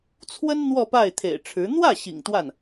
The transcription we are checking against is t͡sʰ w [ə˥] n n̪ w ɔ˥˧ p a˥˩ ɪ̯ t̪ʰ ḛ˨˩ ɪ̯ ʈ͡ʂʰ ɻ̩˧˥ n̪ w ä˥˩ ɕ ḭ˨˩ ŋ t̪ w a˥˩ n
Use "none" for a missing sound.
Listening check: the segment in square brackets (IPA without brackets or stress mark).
ə˥